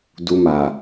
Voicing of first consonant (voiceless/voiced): voiced